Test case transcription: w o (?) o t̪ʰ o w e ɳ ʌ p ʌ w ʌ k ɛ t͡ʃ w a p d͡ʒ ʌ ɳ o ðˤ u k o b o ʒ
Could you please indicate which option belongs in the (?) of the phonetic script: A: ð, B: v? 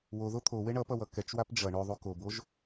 A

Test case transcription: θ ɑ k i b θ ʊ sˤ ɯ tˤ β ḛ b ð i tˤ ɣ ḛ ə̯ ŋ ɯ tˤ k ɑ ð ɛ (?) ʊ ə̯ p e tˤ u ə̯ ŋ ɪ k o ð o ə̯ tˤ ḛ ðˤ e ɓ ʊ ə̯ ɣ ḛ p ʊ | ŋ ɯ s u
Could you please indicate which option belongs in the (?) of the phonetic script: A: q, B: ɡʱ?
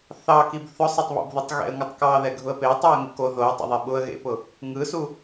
B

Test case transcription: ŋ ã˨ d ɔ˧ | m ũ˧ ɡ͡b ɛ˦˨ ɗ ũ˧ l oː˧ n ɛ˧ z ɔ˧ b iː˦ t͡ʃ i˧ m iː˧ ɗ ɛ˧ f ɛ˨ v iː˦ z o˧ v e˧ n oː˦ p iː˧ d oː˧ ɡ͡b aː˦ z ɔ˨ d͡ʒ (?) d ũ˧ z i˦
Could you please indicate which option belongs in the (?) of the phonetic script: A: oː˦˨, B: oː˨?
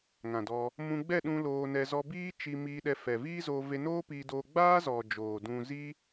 B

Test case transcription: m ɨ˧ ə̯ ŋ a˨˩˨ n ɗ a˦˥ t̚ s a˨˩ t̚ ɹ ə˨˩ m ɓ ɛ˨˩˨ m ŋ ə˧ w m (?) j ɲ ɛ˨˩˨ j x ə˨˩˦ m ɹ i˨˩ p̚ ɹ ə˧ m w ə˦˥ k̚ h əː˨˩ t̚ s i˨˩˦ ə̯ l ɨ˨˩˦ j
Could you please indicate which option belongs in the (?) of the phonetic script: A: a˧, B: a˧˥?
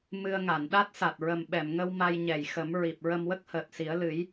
A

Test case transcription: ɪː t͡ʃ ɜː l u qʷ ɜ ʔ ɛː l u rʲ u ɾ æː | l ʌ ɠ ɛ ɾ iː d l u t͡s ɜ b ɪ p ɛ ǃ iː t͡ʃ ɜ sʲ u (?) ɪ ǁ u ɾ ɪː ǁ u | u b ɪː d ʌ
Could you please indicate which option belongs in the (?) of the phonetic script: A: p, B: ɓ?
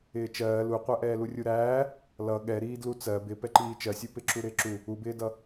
A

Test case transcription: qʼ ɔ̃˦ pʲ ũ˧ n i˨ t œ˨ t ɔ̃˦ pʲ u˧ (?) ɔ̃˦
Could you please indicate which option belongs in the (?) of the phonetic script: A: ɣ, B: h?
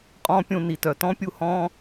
B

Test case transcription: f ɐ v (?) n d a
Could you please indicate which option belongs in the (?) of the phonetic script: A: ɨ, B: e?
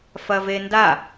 B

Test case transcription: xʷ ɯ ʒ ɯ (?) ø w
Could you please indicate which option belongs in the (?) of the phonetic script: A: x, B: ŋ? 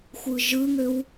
B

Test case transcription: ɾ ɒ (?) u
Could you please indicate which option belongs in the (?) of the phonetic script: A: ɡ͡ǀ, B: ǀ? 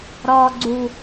A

